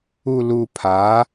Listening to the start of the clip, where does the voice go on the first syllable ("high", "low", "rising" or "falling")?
low